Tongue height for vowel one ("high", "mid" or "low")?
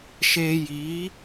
mid